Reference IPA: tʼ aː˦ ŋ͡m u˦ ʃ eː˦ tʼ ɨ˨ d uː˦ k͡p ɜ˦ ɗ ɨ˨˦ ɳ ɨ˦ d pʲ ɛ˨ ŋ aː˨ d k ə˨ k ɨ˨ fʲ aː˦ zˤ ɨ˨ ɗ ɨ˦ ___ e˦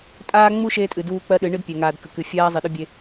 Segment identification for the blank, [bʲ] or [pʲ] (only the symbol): bʲ